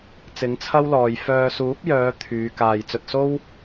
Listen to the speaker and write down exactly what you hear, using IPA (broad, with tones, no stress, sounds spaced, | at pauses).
t͡s ɪ˨˥ ŋ t͡sʰ ɐ˥ w l ɔː˨ j f œː˨ s uː˨˥ p̚ j œː˨˧ t̪ʰ yː˨˧ k aː˨ j t͡s ɵ˧ t̚ s o˥ w